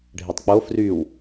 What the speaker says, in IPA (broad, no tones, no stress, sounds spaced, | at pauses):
ɖʱ e tˤ k͡p o f r y w